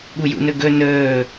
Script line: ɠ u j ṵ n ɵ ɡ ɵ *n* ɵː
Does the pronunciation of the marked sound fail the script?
no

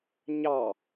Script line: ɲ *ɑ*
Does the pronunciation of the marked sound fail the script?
no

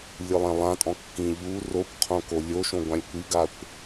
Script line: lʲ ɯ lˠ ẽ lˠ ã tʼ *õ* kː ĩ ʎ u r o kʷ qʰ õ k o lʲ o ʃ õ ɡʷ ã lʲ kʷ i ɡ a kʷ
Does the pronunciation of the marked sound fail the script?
yes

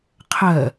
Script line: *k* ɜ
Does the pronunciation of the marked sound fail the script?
yes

